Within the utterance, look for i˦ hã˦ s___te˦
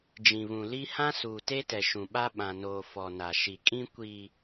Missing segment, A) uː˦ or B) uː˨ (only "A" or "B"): B